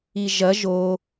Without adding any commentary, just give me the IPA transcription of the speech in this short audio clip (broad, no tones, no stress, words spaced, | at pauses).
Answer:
iʒɐ ʒo